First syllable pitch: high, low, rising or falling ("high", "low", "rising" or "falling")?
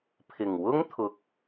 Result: low